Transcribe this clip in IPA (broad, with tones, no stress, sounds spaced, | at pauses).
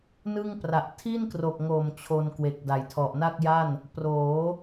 n ɯ˥˩ ŋ p r a˨˩ ʔ tʰ i˥˩ n k r o˨˩ k̚ ŋ o˨˩ m t͡ɕʰ o˧ n k w e˨˩ k̚ d a˩˦ j tʰ ɔ˨˩ ʔ n a˥˩ k̚ j a˥˩ n | p r oː˩˦